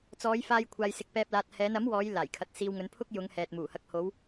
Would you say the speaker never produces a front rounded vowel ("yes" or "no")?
yes